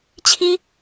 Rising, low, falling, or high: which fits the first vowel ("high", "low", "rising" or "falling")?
high